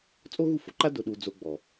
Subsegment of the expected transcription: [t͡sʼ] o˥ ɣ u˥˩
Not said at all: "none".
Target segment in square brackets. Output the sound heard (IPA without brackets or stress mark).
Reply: t͡sʼ